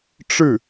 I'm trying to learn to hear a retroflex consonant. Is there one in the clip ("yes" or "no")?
yes